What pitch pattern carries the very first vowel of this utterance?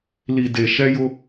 low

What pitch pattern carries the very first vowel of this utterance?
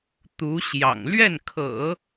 rising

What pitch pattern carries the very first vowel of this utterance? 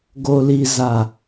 low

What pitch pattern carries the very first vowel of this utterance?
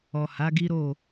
low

